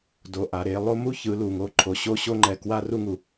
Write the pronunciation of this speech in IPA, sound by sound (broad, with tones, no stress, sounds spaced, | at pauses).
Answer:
d o˨ ʔ a˨ ɾ e˦ lˠ o˦ m u˦ ç ɯ˨˦ l u˨ ŋ o˦˨ ǃʰ o˨ ɕ o˦ ɕ o˦ ŋ͡ǃ ɛ˨ k w a˦ r u˦ ŋ u˨